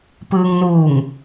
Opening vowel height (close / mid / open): close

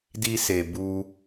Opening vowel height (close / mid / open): close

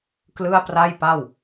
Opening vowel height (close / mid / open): close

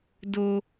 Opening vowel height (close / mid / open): mid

